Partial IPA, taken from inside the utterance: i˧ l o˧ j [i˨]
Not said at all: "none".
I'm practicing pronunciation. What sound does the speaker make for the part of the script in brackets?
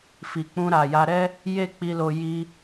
i˧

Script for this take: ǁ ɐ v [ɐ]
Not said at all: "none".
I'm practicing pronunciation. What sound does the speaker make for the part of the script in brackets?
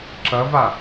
a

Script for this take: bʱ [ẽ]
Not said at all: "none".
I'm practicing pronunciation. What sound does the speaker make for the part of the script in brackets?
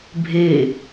e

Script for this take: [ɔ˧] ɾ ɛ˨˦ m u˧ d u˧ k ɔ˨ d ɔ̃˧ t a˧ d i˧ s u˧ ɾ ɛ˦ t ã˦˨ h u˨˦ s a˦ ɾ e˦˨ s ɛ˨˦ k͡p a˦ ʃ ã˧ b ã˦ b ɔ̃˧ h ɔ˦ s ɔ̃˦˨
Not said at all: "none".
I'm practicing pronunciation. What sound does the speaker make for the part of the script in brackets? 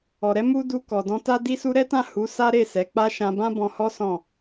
ɔ˨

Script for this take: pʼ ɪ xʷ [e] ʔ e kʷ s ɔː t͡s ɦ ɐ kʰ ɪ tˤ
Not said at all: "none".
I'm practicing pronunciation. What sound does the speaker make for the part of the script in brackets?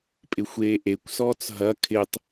eː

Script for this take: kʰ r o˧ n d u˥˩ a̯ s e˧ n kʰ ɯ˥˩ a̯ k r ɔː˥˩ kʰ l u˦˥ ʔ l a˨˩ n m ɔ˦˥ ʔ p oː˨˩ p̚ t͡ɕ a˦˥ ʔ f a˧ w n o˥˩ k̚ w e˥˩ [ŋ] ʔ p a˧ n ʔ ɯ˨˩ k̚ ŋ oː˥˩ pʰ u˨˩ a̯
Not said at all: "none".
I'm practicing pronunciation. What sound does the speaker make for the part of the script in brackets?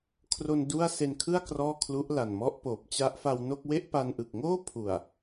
none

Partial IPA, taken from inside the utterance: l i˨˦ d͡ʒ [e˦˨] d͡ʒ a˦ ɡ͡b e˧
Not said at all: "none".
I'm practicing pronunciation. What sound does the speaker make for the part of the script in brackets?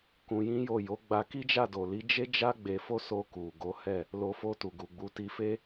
e˦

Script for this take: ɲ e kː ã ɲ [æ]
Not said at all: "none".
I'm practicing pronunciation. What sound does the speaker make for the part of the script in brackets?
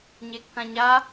a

